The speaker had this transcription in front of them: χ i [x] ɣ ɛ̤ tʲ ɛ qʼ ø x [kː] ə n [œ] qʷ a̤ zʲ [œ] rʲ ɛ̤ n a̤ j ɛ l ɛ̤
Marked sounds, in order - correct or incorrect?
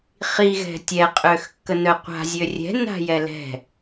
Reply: incorrect: none, correct, correct, incorrect: ø

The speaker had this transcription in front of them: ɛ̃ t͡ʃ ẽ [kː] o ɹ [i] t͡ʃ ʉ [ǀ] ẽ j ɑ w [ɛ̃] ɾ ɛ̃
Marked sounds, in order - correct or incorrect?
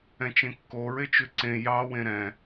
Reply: correct, incorrect: e, correct, incorrect: ẽ

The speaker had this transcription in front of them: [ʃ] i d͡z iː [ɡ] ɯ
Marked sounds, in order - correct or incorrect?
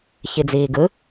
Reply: incorrect: ç, correct

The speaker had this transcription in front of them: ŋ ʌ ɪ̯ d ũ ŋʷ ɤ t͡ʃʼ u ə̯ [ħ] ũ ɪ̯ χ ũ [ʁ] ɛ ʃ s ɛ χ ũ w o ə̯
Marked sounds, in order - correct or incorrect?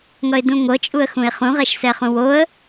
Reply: incorrect: x, correct

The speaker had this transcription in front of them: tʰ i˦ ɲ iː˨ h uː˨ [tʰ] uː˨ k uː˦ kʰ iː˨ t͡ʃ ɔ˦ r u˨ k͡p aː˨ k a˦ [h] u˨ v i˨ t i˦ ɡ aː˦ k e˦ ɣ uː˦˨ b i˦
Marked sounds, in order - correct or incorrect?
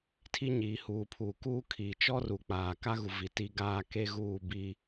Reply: incorrect: pʰ, incorrect: ɣ

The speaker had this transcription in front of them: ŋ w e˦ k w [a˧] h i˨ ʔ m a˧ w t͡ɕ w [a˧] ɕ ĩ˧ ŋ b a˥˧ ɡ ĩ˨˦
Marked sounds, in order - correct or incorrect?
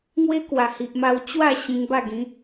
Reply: incorrect: a˨˩, incorrect: a˥˧

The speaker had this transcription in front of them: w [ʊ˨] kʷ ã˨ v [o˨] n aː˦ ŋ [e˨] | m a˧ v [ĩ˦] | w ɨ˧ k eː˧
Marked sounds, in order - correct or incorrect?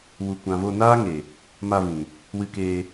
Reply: incorrect: u˨, incorrect: o˧, correct, incorrect: ĩ˨

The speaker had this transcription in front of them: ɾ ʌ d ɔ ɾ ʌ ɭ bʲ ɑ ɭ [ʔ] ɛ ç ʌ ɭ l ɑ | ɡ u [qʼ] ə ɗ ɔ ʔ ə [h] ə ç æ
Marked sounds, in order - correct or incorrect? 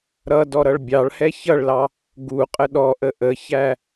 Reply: incorrect: h, correct, incorrect: ʔ

